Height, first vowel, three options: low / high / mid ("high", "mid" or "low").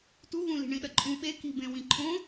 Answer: high